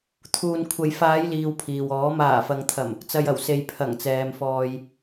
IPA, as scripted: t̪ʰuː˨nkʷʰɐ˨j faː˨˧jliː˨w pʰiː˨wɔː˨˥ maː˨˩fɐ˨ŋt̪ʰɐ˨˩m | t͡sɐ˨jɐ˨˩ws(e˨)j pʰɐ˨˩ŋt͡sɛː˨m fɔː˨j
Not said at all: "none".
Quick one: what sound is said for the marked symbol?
e˨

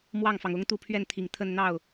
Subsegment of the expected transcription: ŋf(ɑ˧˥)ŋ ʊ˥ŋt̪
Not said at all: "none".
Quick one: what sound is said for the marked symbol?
ɑ˩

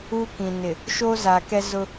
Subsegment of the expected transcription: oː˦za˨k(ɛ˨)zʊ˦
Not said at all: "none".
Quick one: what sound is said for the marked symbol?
ɛ˦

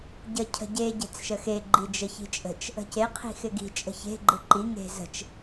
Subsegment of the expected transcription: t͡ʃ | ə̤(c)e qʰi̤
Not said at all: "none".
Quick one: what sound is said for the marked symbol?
c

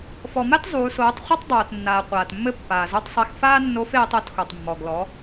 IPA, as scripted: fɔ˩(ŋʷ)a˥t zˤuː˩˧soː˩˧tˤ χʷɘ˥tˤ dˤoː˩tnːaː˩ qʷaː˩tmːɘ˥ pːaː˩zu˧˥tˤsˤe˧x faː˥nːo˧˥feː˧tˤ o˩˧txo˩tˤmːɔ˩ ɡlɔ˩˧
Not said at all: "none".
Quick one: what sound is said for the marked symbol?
m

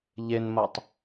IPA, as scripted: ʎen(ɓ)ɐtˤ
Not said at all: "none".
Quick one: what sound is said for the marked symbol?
m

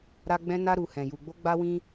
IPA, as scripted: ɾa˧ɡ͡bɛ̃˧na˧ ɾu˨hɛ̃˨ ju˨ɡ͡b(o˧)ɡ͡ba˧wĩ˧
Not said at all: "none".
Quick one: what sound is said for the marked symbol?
o˧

